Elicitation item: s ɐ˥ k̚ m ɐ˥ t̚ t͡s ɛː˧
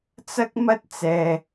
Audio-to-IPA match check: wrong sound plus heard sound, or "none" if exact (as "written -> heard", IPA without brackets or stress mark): s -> t͡s